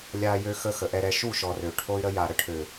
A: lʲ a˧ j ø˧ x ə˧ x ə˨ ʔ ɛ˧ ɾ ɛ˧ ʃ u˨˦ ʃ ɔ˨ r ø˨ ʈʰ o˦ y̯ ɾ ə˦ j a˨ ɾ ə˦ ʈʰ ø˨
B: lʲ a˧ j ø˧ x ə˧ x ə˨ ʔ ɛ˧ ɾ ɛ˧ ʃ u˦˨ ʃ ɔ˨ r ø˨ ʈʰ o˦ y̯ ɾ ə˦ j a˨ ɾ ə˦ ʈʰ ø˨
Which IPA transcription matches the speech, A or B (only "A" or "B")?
B